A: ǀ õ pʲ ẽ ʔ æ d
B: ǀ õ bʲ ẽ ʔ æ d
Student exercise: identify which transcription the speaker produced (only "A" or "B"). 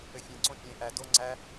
A